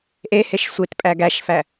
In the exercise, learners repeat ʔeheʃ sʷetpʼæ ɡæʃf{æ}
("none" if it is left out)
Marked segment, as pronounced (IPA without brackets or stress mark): æ